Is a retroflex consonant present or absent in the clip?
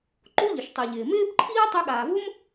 absent